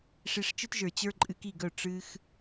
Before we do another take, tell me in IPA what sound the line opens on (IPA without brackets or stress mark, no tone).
ʂ